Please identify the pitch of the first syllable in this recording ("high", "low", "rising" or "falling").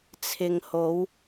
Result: low